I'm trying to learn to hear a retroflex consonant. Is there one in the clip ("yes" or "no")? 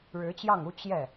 yes